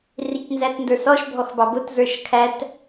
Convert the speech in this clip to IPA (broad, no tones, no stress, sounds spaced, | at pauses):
r i c n z æ t n d ə˞ s ɔ ʃ bʱ ɔ x b ɑ b ʊ t z ə˞ ʃ kʰ æ t